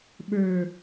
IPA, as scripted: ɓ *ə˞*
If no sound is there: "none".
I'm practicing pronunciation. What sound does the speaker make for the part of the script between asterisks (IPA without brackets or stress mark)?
ə˞